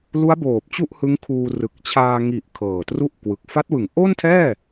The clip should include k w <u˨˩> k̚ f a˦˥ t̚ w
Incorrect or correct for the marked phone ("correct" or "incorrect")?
incorrect